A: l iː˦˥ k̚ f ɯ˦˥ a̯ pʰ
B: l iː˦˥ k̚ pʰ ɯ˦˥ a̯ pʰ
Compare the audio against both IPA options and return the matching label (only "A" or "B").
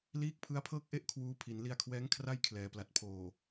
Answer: B